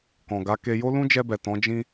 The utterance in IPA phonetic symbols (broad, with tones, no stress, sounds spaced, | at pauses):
k ɔ̃˨ ɡ a˨˦ k e˧ j o˦ l ũ˦ d͡ʒ ɛ˧ b ɛ˨ t ɔ̃˨˦ d͡ʒ ĩ˦